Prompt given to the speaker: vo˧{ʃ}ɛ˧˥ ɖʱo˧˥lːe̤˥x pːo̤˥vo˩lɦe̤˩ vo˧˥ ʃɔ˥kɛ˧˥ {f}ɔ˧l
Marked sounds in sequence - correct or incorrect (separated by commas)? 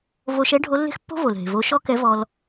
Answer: correct, incorrect